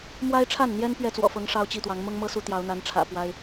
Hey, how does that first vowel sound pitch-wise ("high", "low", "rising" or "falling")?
high